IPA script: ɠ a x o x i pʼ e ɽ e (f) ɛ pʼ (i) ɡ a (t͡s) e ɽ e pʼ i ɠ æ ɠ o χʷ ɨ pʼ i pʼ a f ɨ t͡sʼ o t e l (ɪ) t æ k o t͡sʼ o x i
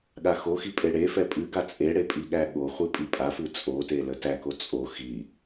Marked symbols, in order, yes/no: yes, no, no, no

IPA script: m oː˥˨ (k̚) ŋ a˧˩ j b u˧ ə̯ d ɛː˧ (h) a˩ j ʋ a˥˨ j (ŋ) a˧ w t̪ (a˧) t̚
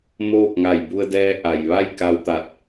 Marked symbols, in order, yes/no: yes, no, no, no

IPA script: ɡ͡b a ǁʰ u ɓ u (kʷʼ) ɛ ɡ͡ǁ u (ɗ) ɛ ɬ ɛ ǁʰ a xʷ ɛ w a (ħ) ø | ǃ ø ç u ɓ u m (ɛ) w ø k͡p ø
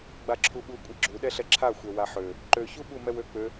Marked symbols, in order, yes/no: yes, yes, yes, yes

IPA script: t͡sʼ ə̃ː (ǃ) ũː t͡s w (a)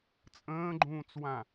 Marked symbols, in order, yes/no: no, no

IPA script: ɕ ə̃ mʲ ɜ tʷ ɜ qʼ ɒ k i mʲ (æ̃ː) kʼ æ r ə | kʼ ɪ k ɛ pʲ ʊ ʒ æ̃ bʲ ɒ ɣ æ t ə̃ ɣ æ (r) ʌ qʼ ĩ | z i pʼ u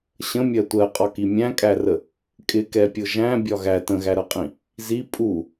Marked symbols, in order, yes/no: no, no

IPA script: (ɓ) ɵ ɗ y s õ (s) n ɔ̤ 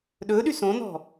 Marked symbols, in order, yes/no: no, no

